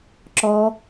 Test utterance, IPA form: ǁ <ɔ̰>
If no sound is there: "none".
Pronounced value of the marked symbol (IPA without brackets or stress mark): ɔ